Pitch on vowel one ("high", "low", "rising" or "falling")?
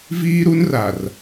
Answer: high